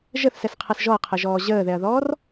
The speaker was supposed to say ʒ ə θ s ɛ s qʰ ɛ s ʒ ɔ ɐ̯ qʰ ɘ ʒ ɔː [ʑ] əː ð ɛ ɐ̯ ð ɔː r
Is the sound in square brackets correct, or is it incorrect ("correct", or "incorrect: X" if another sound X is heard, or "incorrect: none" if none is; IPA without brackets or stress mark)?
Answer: correct